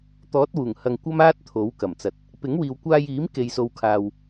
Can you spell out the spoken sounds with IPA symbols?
t̪ɔː˨˥t̚wuː˨˩ŋ hɐ˧ŋkʷɐ˥maː˥t̚ t̪ʰo˨˥wkɐ˨˩mt͡sɐ˨t̚ | pɪ˨˥ŋwiː˨wkʷaː˧jiː˨˥m ke˨jso˨w kʰaː˨w

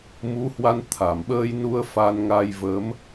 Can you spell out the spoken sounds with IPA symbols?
mu˨˦hwa˧n t̪ʰa˧˩mɓəː˧jnu˧ə̯ fa˧nŋa˧jvə˨˦m

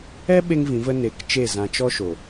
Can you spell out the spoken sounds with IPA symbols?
ɛ˦ ɓe˦ŋvĩ˨˦ və˦ ne˧k t͡ʃe˦˨zã˧t͡ʃɔ˦ ʃo˨

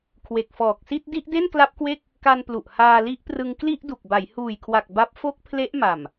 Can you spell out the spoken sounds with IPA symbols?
kʰwe˨˩k̚fɔː˨˩k̚si˥˩t̚ di˥˩ʔde˥˩nkla˦˥p̚kwe˥˩k̚ | ka˧nplu˨˩ʔ haː˧li˦˥ʔprɯ˧ŋ kli˥˩ʔdu˨˩k̚ba˩˦j huː˨˩jkʰwa˨˩k̚ ba˦˥p̚ fo˦˥k̚ pʰle˦˥ʔma˨˩m

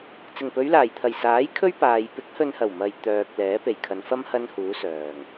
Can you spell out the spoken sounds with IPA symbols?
t͡sɪ˨˩ŋpɵ˨˧ɥlaː˨˩jt̪ʰɐ˨˩j saː˨˥j kʰɵ˥ɥpaː˨j pɪ˨˥k̚hɵ˨nhɐ˨˩w mɐ˨j t̪œː˨k̚ lɛː˨˥pe˨jkʰɐ˨˧n fɐ˥m hɐ˥nhuː˨˥sœː˨˩ŋ

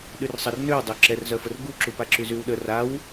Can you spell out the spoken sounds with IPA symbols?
ɗyrsˤər nøw dˤøǁɛrzœfər ɡuǁupaǁy zywɗə raw

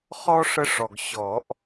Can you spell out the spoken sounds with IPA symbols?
χɔ˦ ʂə˦ʂɔ˨ɡ ɕɔ˨˩˦ʔ

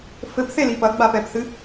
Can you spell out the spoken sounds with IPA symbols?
fɘpθeli pɐɡ͡bapɛpθɨ

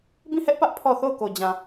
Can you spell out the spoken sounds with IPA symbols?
bĩ˦˨hɛ˦ʔpä˦ʔ pʰɔ˦˨ θo˦˨ʊ̯ko˨d͡ʑã˨

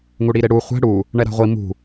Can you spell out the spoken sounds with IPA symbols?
ŋuɽiɾeɽu χʷɛ̤ ɽu | ɳɛɾa̤ʁʷi mṳ

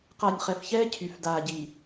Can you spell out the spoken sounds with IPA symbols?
qa˨nʲχɛ˨fçɛː˦ cʰy˨f daː˨ɟi˨

